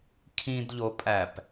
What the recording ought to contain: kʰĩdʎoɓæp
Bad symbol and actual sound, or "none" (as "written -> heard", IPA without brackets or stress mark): ɓ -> pʼ